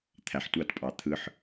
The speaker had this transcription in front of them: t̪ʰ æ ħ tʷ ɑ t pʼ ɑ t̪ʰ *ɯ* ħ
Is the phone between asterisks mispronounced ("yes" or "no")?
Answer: no